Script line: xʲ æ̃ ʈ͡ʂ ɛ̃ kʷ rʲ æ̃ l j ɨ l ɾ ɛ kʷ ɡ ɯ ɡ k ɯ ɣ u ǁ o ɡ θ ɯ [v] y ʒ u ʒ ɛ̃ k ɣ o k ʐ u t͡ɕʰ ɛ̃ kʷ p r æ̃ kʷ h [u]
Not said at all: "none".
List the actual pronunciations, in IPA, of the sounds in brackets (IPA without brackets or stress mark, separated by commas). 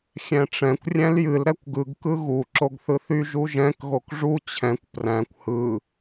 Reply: θ, ɯ